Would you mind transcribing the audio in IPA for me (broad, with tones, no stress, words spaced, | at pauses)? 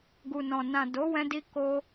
ɡu˨nɔ̃˨ nã˨ do˨˦wɛ̃˧di˧ ko˧